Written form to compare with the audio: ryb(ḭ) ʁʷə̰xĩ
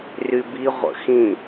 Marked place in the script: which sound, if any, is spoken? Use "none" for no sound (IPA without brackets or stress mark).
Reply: i